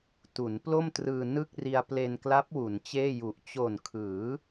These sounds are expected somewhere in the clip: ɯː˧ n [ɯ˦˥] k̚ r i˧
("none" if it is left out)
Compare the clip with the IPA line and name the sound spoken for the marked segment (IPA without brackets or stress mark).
ɯ˥˩